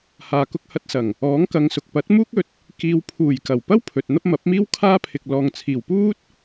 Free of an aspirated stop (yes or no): no